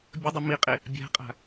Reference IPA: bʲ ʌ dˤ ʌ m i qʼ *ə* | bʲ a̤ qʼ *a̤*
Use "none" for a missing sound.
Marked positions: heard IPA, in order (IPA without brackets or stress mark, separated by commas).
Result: ɪ, a̤